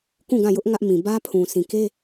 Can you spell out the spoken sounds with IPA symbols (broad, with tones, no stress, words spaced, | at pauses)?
kũ˦˨ɡã˦˨jʊ˦ʔ ŋä˦ʔ mĩ˨ bä˦pʰũ˨ sĩ˨ke˦